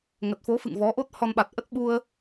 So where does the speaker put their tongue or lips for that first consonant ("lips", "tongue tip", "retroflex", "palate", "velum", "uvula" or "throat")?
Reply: velum